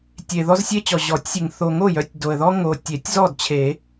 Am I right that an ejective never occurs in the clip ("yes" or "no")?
yes